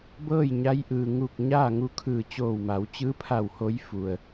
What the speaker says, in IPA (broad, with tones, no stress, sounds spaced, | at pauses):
b ɤː˥˨ j ɲ a˧˥ j ʔ ɯː˩ ŋ u˧˩ k̚ ɲ aː˥˨ ŋ u˧˥ kʰ ɯː˧˩ t͡ɕ oː˧˩ w m a˩˧ w t͡ɕ ɯː˧˥ pʰ a˧˩ w h o˧˥ j f u˩ ə̯